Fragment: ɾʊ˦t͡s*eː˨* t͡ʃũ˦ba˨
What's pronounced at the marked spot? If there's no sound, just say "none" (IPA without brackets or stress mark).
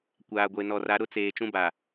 eː˨